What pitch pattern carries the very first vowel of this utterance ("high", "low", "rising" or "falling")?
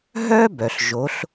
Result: high